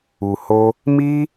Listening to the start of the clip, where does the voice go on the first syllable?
low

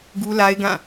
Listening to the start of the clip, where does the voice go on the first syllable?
high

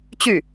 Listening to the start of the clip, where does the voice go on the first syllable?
falling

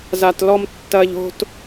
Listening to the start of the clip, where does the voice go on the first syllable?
low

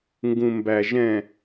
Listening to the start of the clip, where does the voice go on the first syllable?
low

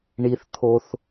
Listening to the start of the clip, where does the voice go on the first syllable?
low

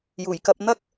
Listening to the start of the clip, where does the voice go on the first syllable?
low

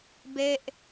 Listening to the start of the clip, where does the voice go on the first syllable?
falling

